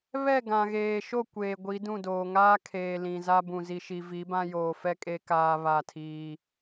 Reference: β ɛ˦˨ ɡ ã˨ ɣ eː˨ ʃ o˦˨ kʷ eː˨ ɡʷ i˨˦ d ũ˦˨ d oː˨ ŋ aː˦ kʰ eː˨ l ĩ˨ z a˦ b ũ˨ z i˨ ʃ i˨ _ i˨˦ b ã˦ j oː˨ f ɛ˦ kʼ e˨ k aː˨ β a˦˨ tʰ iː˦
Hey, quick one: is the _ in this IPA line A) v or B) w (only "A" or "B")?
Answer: A